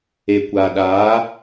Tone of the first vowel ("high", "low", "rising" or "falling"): low